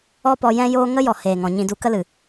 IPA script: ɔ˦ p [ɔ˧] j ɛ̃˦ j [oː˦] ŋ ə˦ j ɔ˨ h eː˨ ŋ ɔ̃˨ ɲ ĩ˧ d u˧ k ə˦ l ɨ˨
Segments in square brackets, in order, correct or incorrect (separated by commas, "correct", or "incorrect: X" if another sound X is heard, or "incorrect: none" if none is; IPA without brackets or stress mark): correct, correct